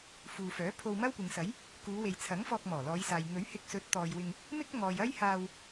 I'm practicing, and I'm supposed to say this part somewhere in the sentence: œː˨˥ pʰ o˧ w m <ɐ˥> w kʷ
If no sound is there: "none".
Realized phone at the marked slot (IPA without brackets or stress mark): ɐ˥